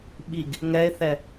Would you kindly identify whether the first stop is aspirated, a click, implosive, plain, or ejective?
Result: implosive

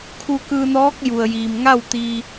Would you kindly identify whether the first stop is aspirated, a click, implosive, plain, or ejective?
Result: aspirated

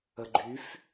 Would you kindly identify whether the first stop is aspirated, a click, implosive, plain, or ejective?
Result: click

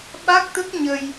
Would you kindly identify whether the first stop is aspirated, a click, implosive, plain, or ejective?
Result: implosive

